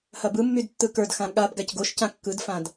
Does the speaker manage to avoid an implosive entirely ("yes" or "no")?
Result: no